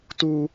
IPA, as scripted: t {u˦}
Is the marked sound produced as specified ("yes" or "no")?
yes